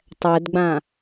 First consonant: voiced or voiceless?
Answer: voiceless